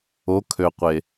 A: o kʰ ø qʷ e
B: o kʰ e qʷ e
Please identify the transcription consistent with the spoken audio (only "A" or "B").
A